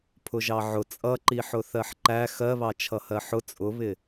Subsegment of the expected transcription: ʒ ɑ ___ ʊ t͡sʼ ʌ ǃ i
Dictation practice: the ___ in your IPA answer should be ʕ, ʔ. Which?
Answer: ʕ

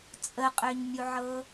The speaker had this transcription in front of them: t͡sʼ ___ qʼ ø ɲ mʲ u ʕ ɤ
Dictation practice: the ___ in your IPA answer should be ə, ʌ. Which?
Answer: ə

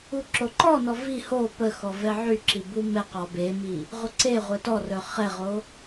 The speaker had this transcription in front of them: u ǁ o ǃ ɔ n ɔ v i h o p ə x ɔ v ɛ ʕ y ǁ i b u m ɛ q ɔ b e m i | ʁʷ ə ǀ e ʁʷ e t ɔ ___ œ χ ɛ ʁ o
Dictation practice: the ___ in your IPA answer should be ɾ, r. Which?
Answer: r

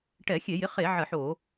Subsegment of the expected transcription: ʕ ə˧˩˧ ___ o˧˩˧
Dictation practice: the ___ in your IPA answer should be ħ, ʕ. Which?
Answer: ħ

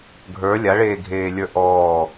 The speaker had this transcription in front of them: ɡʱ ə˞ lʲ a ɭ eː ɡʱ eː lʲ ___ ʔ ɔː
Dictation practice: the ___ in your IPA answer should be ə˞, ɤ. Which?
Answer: ə˞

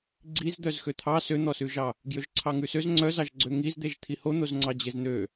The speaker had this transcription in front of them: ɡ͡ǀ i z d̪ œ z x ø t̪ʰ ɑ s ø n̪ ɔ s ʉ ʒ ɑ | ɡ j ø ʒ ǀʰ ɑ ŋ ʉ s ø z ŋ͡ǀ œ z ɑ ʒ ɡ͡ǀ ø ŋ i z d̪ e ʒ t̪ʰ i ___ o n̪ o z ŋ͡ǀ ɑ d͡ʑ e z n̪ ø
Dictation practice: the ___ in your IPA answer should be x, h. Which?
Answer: h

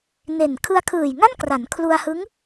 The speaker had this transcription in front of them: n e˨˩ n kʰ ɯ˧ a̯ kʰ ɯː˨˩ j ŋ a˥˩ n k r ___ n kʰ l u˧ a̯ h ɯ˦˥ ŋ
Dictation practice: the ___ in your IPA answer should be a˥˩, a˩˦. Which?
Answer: a˩˦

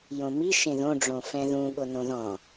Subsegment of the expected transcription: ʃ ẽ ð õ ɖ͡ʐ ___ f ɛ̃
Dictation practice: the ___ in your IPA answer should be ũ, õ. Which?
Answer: õ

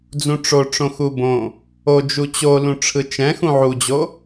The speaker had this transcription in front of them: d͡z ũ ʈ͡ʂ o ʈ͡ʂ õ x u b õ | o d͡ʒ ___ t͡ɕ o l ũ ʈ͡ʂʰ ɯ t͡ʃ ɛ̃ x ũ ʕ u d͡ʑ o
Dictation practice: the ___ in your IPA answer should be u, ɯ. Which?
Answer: u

